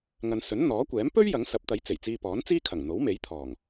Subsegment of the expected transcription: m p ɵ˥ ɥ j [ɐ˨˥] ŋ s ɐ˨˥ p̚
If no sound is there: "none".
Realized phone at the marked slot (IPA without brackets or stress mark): ɐ˨˥